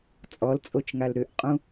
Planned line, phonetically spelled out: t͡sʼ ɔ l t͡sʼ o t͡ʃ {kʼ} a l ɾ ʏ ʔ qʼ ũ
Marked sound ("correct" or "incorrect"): incorrect